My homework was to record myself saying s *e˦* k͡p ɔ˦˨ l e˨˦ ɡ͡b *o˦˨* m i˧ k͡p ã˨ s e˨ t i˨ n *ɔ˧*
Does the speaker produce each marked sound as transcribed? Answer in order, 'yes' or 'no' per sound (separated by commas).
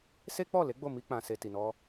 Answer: yes, yes, yes